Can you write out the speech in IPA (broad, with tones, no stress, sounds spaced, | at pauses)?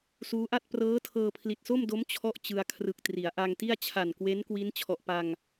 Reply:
s uː˦˥ ʔ a˥˩ t̚ p r ɤː˦˥ tʰ ɤː˧ pʰ l i˨˩ t̚ s o˥˩ m d o˦˥ m t͡ɕʰ ɔ˥˩ ʔ t͡ɕ ɯ˧ a̯ kʰ r ɯ˨˩ k̚ t r i˩˦ a̯ ʔ a˧ ŋ t i˥˩ a̯ t͡ɕʰ a˨˩ n k w e˦˥ n k w i˦˥ n t͡ɕʰ ɔ˨˩ ʔ p a˧ ŋ